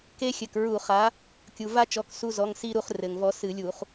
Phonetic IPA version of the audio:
ke˦xʲɘ˩˧˩kɹu˧˩˧ χa˨˥ | kʲu˩va˦t͡ʃɔ˩˧˩k su˦˨zɔ˩˧˩ŋsi˦˨ɾu˦˨χ rɘ˩ŋvɔ˨˥sɨ˧˩˧ lʲu˧˩˧χ

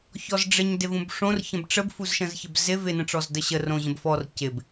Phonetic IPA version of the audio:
çɔzɖ͡ʐɪɲdɪvũb ʂõrçə̃b ʈ͡ʂəbfuzʃə̃z çəbzɪ vɪnə̃ʈ͡ʂɔz dəɕə rõʑə̃bfɔr cɪb

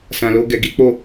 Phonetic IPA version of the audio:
sã˨lo˧ ɡɛ˧ɡi˦ k͡po˦˨

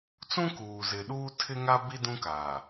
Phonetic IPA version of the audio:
t͡sũ˦kuː˨ zɪ˨ɗuː˦ tʰɪ˦ŋa˦bi˦ dũ˦kaː˨

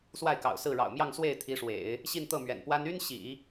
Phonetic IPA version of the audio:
swa˥˩ɪ̯kɑ̰˨˩ʊ̯sɹ̩˥˩ ɻɑ̰˨˩ʊ̯ mjɑ˥˧ŋswe˥˩ɪ̯t̪ʰi˧˥ʂwḛ˨˩˦ɪ̯ | ɕi˥˧nt̪ɤ˥˩mɥɛ̰˨˩npwa˥n y˥nɕḭ˨˩˦

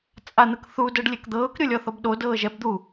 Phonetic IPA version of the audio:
t͡sʼan̪ɯkθu dɤɖlʲekd̪ɤːk ɾʲolʲɔθɔbɗo dɤːʒɛb d̪u

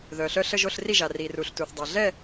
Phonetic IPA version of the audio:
ðœː˩ɬœ˥˨ ɬə˥˨ʒo˥˨ɬ ri˥˨ʒa˩ riː˩ruː˩ɬtuː˩θ dˤa˩ ɮɛ˥˨

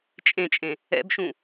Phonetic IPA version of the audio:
t͡ʃʼẽt͡ʃʼẽ | ɛ̰bʃũ

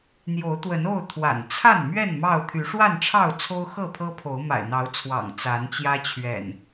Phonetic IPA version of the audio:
n̪jo˨˦ʊ̯t̪wə˨˦no˥˨ʊ̯ t̪ʰwa̰˨˩nt͡sʰa˥˨n mɥɛ˥˨n mɑ˥˨ʊ̯ t̪ʰy˨˦ ʂwa˥˨nʈ͡ʂʰɑ˥˨ʊ̯ t͡sʰo˦ʊ̯xɤ˥˨pʰɤ˦pʰo˨˦ʊ̯ ma̰˨˩ɪ̯n̪ɑ˨˦ʊ̯t͡sʰwɑ̰˨˩ŋ t͡sa˨˦nt͡ɕjä˦t͡ɕʰɥɛ̰˨˩n

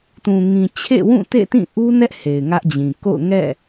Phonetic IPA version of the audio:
tũ˨ ŋĩ˨ t͡ɕʰḛ˦˨wũ˦˨ tḛ˦˨tĩ˦˨ ʔu˦nɛ˦ʔ he˨ɪ̯ŋä˦ʔd͡ʑĩ˨ ko̰˦˨ʊ̯ ŋɛ̰˦˨

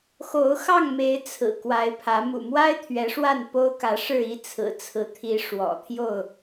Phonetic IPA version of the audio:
xo˨˦ʊ̯xɑ˥˨ŋme˨˦ɪ̯ t͡sʰɹ̩˨˩ kwa˨˦ɪ̯pʰä˨˦ mṵ˨˩mwa˦ɪ̯ t̪ʰɥɛ˨˦ʂwa˥˨n po˦ʊ̯kä˨˦ʂɻ̩˥˨i˦ t͡sʰɹ̩˨˩t͡sʰɹ̩˨˦t̪ʰi˨˦ ʂwɔ̰˨˩t̪ʰjo˥˨ʊ̯

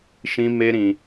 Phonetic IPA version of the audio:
ʃĩ˦me˦ɾĩ˧

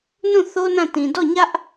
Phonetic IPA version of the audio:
nũ˦˨ θo˦nã˦˨ tĩ˨dɔ˦˨ɲä˦ʔ

